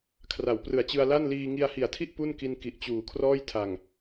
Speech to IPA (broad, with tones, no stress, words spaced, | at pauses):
kʰra˩˦wprɯ˨˩a̯t͡ɕɯ˧a̯la˥˩n liː˧ŋi˧a̯hi˨˩a̯tʰi˥˩ʔ pu˥˩nki˧n ki˨˩ʔt͡ɕuː˩˦ kʰrɔː˥˩j tʰa˨˩ŋ